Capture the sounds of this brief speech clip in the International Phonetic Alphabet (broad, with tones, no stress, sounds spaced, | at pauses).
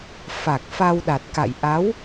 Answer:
f a˨˩ k̚ f a˧ w ɗ a˨˩ t̚ k a̰˧˨ j ʔ a˨˦ w